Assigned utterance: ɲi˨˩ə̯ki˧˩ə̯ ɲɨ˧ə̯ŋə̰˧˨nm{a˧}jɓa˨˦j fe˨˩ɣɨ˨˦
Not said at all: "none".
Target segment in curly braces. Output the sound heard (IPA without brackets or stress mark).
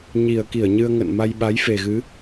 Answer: a˧